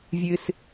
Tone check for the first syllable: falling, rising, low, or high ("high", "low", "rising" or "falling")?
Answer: high